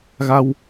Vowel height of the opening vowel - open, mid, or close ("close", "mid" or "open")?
open